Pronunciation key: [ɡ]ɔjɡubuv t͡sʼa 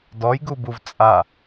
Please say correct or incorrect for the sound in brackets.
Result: incorrect: d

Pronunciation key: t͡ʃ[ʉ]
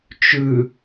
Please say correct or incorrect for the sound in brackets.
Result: correct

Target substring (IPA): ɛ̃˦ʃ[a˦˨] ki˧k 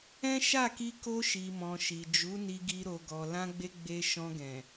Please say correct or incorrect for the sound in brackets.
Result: correct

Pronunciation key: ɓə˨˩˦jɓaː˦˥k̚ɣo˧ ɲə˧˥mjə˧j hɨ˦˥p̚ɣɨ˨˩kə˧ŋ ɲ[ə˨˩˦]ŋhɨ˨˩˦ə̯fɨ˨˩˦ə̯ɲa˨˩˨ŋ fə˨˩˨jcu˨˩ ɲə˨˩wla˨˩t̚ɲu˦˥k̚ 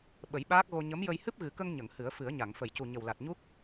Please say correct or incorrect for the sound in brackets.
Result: incorrect: ə˨˩˨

